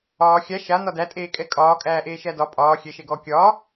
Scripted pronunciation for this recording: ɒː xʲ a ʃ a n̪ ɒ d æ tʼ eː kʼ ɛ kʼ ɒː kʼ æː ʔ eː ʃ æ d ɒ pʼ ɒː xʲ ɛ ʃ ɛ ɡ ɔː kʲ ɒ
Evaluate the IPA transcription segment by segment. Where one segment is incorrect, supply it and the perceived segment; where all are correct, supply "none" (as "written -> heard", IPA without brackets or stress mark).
none